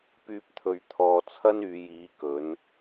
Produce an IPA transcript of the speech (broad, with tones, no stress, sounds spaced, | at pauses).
p yː˧ p̚ t̪ʰ ɵ˨ ɥ t̪ʰ ɔː˨ t͡sʰ ɐ˥ n yː˨˧ j iː˨˥ k ɵ˨˥ n